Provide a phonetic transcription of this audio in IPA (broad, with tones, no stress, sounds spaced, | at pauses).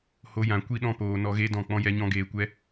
h o˧ j ã˨ kʷ i˧ ɗ ɔ̃˧ p oː˨ n ɔ˧ ɣ e˦ d ɔ̃˦˨ k͡p ɔ̃˦ j ɛ˦ ɲ ɔ̃˦ ɡ eː˧ kʷ ɛ˦